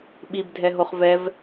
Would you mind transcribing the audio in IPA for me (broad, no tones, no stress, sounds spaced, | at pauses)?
ɓ i b dʱ ɛ ɦ o χ v ɛ v